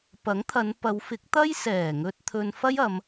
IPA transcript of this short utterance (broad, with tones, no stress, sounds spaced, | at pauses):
p ɐ˨˥ ŋ t̪ʰ ɐ˨˧ n p ɐ˨˧ w f ɪ˨˥ k̚ t̪ ɐ˥ j s ɛː˨˩ ŋ ɵ˧ t̚ t̪ʰ ɵ˧ n f ɐ˥ j ɐ˨˧ m